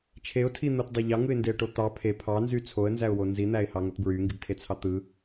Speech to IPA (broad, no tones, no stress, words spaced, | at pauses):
t͡ʃʰeʊ̯tʰin̪otdˤe ʎɑŋɯɪ̯ndeə̯ʈo t̪ɑ pʰe pʰɑnzy t͡sʰoə̯nzæʊ̯wo nzin̪æɪ̯hɑŋot bɹyŋɡibtʰet͡sʰɑ t̪ɯ